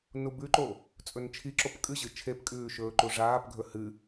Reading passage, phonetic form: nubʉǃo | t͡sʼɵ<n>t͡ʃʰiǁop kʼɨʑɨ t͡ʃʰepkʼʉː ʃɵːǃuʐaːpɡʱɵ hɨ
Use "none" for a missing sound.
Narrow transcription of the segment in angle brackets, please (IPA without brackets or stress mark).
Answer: n